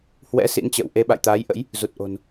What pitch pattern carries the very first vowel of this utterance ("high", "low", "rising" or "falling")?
rising